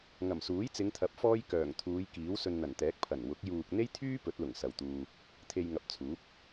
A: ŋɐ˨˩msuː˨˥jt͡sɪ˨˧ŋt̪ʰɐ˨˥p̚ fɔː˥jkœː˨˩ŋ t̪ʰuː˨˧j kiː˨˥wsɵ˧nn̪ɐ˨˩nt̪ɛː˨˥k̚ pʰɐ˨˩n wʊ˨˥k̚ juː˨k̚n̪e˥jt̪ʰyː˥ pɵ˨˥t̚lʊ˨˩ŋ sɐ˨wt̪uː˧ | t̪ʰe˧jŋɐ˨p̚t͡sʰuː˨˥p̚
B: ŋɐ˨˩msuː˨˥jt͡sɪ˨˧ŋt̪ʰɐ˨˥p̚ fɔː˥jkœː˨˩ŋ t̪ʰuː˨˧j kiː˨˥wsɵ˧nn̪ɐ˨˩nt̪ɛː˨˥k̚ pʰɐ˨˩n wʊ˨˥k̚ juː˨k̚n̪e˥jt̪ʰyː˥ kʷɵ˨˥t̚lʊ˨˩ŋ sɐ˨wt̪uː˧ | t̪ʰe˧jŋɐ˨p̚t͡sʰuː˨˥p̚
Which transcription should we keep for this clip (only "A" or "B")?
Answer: A